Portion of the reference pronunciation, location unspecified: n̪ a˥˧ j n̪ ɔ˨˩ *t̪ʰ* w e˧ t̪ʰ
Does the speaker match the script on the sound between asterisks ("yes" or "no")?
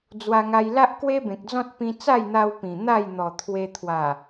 yes